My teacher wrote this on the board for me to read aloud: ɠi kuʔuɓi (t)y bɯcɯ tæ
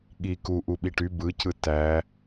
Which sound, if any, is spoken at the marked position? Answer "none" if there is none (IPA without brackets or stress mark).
ʈ